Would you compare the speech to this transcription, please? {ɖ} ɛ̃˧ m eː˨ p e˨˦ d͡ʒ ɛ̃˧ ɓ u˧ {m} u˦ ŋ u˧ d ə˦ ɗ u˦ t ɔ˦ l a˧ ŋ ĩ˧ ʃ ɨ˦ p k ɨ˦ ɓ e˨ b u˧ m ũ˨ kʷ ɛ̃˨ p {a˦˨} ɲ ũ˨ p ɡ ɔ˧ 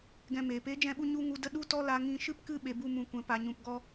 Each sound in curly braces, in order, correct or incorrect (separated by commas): incorrect, incorrect, incorrect